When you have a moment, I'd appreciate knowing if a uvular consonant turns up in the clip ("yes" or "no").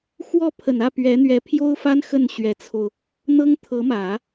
no